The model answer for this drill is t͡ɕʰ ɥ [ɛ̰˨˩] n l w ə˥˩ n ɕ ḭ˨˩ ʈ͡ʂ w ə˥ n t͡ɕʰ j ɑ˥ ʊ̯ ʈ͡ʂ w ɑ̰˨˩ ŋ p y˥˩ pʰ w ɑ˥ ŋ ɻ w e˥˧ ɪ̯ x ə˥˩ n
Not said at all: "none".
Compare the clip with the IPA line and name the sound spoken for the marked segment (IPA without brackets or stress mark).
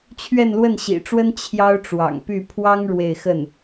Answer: ɛ˥˧